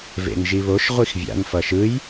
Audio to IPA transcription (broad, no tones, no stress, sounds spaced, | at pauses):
v ḛ n ʒ i β o ʃ ʁʷ i x vʲ a̰ n f ʌ ʃ ɯ j